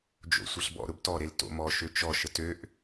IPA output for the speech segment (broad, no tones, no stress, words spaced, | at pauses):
d͡ʒo̰sʷɐɬbɔ̰ ɾʊbtɔ ɾelto̰ mɔ ʃøt͡ʃɔ ʃətøʔ